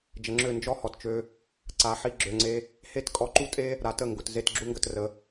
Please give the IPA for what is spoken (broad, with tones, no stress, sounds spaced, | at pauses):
d͡ʒ ə˨ ŋ͡ǁ ø˦˨ n d͡ʒ ɔ˦ h ɔ˨ t t͡ʃ ø˧ | ǀ a˨˦ ħ i˦ ɡ͡ǁ ø˧ ŋ͡ǀ e˦ | h e˦ t kʼ ɔ˧ ǃ u˦ tʼ e˦ | ɾ a˨ t ə˦˨ ŋ ɡ ʊ˨ t z e˦˨ t ɡ͡ǁ u˦ ŋ ɡ ə˧ t r ə˨˦